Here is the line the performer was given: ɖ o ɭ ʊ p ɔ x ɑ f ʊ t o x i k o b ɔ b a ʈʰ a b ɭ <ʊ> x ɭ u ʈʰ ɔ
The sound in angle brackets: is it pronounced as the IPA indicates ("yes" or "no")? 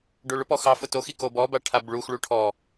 no